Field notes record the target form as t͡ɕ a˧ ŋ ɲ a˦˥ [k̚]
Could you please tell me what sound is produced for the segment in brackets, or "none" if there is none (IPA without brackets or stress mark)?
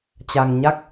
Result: k̚